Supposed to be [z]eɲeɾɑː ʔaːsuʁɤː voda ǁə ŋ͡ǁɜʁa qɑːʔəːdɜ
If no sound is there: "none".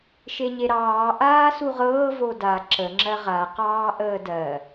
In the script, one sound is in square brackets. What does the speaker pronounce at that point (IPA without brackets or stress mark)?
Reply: ʃ